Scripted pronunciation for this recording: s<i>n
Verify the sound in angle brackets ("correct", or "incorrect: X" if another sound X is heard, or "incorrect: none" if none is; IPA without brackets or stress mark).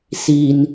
correct